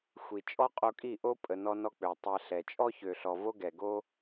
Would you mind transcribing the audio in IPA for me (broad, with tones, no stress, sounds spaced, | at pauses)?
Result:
xʷ i˨ t͡ʃʼ ɔ˦ qʼ o˧ kʼ i˦˨ ʔ o˦ pʼ ə˨ n ɔ˧ n ɔ˧ k͡p ø˨ tˤ ɛ˧ ɬ ɛ˨ t͡ʃʼ ɔ˦ ç ø˨ ɬ ɔ˨ v o˦ ɡ ɛ˨ ɡ o˦